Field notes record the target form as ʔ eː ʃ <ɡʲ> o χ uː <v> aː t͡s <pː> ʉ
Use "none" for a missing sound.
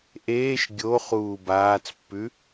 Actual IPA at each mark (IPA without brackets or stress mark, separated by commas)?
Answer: ɡʲ, b, pː